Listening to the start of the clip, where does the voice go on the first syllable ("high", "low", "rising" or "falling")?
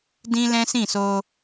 high